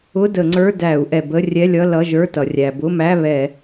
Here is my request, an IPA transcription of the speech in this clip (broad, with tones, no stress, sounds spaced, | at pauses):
ʊ˧˥˧ d ə˧˩˧ ŋ͡ǀ ə˞˧˥˧ d æ˧˩˧ u̯ ʔ ɛ˩ b ə˧˥˧ rʲ ɛ˧˥˧ lʲ ʌ˧˥˧ l ʌ˧˥˧ ʒ ə˞˧˥˧ t ʌ˩ rʲ æ˩ b ʊ˧˥˧ m æ˧˥˧ β ɛ˧˩˧